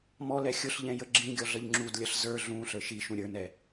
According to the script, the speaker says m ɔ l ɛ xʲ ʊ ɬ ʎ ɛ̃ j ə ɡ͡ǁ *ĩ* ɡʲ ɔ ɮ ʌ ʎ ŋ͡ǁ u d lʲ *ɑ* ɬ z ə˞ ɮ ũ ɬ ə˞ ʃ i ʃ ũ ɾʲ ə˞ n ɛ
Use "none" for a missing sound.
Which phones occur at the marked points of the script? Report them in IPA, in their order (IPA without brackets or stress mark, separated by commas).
ĩ, ʌ